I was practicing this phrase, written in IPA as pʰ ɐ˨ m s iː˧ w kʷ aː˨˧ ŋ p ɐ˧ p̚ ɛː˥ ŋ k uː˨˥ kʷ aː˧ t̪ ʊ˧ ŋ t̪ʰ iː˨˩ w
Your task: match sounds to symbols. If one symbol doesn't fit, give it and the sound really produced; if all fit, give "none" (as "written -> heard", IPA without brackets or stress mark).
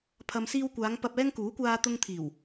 none